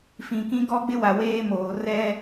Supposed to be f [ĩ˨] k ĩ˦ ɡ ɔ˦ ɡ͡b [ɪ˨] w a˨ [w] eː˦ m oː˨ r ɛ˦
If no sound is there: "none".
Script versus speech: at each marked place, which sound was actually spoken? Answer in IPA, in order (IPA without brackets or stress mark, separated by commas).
ĩ˨, ɪ˦, w